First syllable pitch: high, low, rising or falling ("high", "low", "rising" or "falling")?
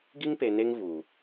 high